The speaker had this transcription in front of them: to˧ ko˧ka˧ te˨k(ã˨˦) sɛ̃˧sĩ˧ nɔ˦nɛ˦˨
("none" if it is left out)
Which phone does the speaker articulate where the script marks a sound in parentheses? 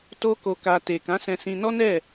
ã˨˦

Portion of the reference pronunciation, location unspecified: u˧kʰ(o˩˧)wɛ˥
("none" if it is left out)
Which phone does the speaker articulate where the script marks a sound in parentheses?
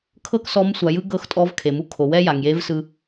o˩˧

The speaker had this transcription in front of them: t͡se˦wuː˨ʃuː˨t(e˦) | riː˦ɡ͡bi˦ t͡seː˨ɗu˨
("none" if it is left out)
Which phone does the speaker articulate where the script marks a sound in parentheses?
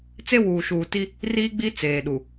i˦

